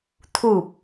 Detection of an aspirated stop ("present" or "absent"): present